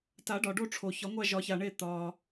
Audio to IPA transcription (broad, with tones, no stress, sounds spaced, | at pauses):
t a˨˩˦ ɖ ɒ˩ ɖ o˦˨ ʈ͡ʂʰ o˩ ç ɒ˨˩˦ ŋʷ a˦˨ ʒ ɒ˨˩˦ ç a˩ ɳ e˦˨ t̪ ɒ˩